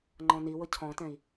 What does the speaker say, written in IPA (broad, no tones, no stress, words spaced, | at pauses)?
ŋ͡ǃɔ̃niwʊ cʰɔ̃tɛ̃i̯